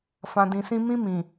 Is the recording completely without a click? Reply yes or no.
yes